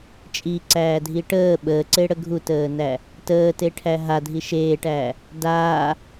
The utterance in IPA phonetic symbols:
t͡ʃʼ i ǀ æː dʱ i ʈ əː ɓ əː ǀ e ɽ ə ɡʱ u t əː n æ | t əː t e ʈʰ æ ɦ a dʱ i ʃ eː ʈ æː | d aː

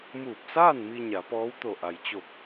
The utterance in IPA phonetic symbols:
m uː˧˩ p̚ s aː˥˨ n m i˧ ɲ a˩˧ p ɔː˧˥ w t̪ o˧˩ ʔ a˩ j t͡ɕ o˧˩ p̚

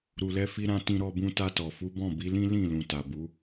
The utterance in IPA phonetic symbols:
ɾ u˧ l ɛ˦ f i˦ ɾ ã˦ t ĩ˧ ɾ ɔ˧ b ũ˧ t a˧ t ɔ˨ f u˨˦ b ɔ̃˦˨ b i˨˦ l ĩ˦ l ĩ˦˨ l ũ˨ t a˨ b u˨˦

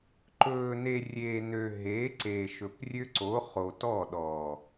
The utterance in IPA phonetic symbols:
ǃ ɵː˨ n e˨ rʲ eː˨ n ø˨ ɦ eː˨˦ ǀ eː˨ ʃ ɵ˨ p rʲ ø˦ ǀ o˨˦ χ oː˨ t ɔ˦˨ ɗ ɔ˨

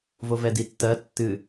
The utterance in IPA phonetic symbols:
v o v ɛ d i tː ɜ tː ɨ

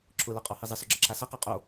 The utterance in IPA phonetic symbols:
ǁʰ ʊ l ʌ qʼ ɔ h i zˤ ɨ s ɔ ɡ͡ǁ ʌ ǁʰ a s ʌ q a qʼ o

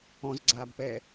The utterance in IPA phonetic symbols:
ɔ̃ z ɡ͡ǀ aː b p ɛː

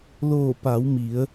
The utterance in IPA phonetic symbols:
l oː˧˩ p a˩˧ w m i˩˧ ə̯

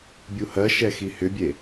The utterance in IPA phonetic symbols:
bʲ u h ɜ ʃ ɛ x i h ʏ bʲ e

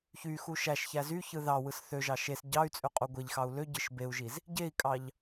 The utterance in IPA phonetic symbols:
ç y x u ʃ æ ʃ ç æ z y ç ɯ ð ɑ w ɯ s θ ø ʒ ɑ ʃ e s ɟ ɑ y̯ t͡sʼ ø qʼ u ɡʷ e ʎ x ɑ u̯ l ø ɟ ɯ ʃ b e u̯ ʒ i z | ɟ e i̯ kʼ ɑ ʎ

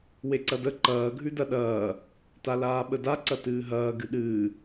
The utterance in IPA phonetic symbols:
w e ǀ ɐ d ə ǃ ɐː ɡʱ ʉ d ɐ ɗ ɐː | t a l aː ɓ ə d a ǀ ɐ t ɨː ɦ ɐː ɡ ɨ ɗ ɨː

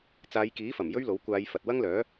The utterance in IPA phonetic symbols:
t͡s aː˨˧ j k iː˨˥ f ɐ˨˩ m j ɵ˥ ɥ l o˨˥ w kʷ aː˨˧ j f ɐ˨ t̚ w ɐ˥ ŋ l œː˨˥

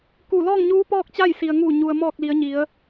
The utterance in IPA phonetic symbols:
k u˧˩ l ɔː˥˨ ŋ ɲ uː˧˥ p ɔː˥˨ k̚ t͡ɕ a˥˨ j s i˩ ə̯ ŋ uː˧˩ ɲ u˩ ə̯ m ɔː˧˩ k̚ l i˩˧ ə̯ ɲ i˩˧ ə̯

